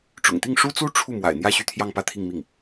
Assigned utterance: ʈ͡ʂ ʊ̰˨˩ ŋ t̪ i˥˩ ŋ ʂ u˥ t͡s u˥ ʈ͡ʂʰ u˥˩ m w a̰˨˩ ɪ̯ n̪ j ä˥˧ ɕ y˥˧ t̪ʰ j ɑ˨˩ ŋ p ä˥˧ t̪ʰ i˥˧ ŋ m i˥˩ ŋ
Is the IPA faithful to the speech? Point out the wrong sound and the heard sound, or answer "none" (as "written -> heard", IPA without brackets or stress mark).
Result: ɑ˨˩ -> ɑ˥˧